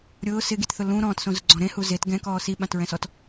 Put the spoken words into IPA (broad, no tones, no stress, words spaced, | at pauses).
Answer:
ɾʲʊː sɪɡitθʊ lũ ɾɔ̃ːtsõzʊɡ͡ǀɔ̃ ɾẽhu zet ɡɛ̃kɔː siɓãtɹɛ̃sɔt